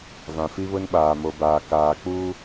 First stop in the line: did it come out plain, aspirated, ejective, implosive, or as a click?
implosive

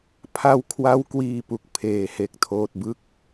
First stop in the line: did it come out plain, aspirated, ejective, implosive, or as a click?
aspirated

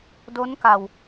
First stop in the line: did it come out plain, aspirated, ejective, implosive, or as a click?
plain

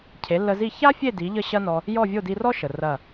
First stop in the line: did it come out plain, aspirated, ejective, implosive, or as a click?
aspirated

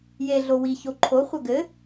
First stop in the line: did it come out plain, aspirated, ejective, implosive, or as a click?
click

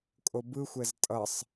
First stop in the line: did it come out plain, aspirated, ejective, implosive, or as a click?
ejective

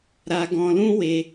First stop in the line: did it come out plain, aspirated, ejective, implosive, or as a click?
plain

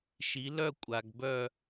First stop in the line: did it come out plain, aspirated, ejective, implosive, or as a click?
ejective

